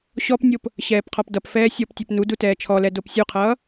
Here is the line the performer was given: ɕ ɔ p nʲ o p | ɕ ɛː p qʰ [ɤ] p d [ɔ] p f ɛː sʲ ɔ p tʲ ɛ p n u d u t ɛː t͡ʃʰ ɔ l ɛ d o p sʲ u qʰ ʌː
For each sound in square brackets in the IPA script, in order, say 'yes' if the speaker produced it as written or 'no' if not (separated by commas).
no, no